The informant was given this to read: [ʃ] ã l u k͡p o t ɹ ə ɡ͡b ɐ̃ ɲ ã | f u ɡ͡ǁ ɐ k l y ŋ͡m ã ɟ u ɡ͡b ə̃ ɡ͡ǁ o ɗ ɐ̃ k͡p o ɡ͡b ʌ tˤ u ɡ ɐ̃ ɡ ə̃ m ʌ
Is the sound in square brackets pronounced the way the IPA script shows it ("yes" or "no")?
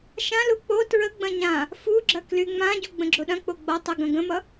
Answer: yes